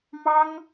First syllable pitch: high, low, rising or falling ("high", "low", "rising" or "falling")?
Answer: high